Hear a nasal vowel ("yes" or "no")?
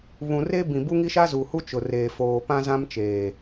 yes